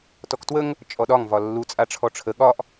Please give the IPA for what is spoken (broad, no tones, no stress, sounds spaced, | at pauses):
t ɔ k t w ə ŋ | t͡ʃʼ ɔ ɗ ɒ ŋ v ɒ lː u t͡sʼ a ʈ͡ʂʰ ɔ ʈ͡ʂʰ ə ɠ ɒ ʔ